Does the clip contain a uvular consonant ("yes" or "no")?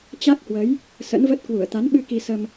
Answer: no